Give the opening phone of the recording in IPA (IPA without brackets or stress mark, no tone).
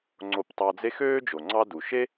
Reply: ŋ͡ǀ